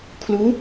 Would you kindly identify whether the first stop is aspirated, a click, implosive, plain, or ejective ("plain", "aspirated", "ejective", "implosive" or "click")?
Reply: aspirated